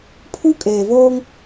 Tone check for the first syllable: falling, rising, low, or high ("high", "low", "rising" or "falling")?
high